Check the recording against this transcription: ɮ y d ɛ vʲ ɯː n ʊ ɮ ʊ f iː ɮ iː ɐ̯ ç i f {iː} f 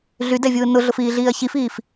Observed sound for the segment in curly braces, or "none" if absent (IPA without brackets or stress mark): iː